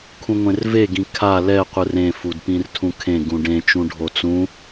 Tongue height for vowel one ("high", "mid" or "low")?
high